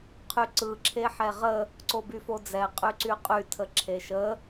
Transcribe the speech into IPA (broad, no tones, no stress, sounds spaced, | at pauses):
qʰ y ǀ ɯ ǁʰ e ħ ɛ ʁ ə | ǀ o b y f o d͡z ɛ qʼ y ǀ y qʼ y tʰ ə ǁʰ e ʃ ə